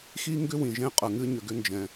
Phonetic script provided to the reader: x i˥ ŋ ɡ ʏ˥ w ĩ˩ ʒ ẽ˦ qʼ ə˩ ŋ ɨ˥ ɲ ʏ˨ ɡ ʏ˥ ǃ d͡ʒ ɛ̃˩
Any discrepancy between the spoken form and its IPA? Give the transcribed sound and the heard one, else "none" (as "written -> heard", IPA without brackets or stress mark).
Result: ǃ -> n